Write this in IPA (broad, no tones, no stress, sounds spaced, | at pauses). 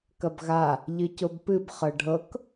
k ɐ b ɣ a | ʎ ɨ c o b p ɨ b χ ɤ ɖʱ ɤ k